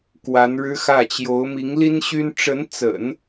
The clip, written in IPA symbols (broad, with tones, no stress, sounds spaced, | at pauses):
k w a˧˥ n ɻ ɻ̩˥ x ä˥˩ t͡ɕ j o˧˥ ʊ̯ m i˧˥ ŋ l i˥ n ɕ y˥ n ʈ͡ʂ ə˧˥ n t͡s ə̰˨˩˦ n